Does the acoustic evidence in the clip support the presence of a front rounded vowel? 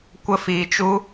no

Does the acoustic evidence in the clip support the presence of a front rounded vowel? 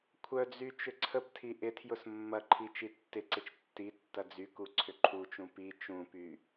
yes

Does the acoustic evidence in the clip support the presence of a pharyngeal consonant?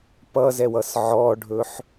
yes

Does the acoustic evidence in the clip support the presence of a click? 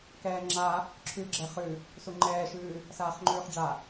yes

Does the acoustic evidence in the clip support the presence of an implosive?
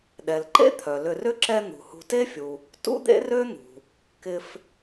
yes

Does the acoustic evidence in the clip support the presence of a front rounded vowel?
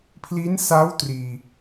no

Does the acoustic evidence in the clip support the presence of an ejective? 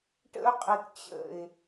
yes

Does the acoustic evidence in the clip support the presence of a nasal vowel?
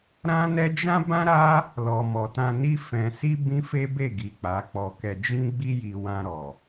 yes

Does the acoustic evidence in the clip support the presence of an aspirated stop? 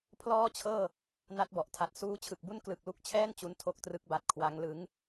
yes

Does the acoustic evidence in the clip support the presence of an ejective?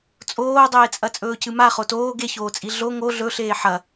yes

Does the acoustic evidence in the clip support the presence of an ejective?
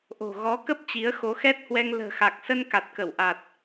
no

